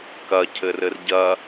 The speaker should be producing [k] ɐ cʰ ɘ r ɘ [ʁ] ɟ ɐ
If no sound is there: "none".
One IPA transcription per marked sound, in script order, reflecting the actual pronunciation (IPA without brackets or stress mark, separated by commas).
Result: k, r